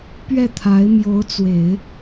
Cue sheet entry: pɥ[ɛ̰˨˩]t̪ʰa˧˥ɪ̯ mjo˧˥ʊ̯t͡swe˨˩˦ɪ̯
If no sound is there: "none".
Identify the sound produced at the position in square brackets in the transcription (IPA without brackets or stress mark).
ɛ˥˩